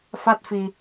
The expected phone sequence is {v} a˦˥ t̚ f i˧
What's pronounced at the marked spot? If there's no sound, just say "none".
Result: f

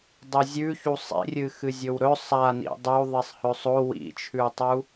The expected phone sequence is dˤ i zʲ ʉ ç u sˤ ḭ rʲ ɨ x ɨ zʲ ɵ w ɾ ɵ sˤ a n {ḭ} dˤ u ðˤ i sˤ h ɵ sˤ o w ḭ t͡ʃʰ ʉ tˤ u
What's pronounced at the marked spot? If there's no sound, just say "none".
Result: ḭ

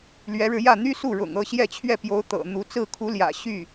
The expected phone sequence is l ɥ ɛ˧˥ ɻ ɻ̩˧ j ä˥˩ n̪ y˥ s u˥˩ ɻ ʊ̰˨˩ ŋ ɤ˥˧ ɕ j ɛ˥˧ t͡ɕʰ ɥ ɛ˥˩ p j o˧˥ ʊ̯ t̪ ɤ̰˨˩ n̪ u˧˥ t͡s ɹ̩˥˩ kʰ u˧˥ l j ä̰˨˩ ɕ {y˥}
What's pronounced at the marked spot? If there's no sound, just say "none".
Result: y˥˩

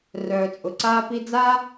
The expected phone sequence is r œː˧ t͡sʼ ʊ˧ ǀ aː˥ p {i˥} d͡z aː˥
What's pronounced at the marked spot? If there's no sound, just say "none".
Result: i˥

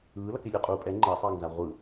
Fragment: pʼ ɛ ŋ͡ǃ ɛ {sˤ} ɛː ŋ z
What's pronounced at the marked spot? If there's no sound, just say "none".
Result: sˤ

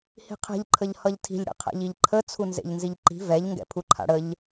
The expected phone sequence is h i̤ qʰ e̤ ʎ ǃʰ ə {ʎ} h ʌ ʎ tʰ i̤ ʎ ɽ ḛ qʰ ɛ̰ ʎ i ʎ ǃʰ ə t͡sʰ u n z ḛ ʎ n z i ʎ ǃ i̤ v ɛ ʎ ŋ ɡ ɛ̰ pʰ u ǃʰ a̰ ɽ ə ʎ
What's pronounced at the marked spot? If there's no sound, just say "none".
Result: ʎ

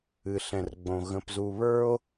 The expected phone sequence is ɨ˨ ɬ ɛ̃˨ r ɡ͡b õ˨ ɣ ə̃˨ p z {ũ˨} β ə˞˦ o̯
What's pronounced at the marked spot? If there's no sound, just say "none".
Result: u˨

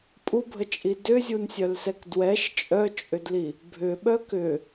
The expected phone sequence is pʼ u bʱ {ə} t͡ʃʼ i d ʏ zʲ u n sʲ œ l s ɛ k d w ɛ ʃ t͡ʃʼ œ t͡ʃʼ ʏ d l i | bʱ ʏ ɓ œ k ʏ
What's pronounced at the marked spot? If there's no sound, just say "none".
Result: ə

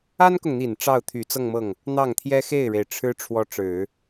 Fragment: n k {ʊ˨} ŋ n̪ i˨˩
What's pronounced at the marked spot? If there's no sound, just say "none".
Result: ʊ˨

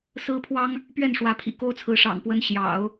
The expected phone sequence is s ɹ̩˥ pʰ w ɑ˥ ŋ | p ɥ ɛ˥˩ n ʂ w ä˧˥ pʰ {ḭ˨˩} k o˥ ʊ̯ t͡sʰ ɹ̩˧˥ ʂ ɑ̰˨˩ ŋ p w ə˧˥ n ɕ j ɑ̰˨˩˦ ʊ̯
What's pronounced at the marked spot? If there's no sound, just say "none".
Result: ḭ˨˩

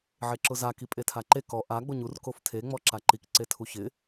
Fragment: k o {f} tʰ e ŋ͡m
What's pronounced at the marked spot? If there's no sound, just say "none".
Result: f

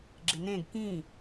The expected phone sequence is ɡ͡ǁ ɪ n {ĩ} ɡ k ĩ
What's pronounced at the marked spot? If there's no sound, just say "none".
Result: ẽ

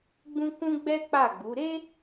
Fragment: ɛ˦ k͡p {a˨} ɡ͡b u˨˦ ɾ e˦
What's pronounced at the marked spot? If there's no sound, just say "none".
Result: a˦˨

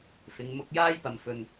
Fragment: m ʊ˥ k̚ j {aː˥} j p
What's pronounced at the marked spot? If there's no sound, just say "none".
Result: aː˥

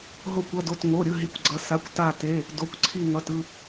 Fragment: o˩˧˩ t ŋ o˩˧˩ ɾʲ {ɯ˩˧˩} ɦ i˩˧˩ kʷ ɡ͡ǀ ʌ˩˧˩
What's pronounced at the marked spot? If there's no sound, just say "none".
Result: ɯ˩˧˩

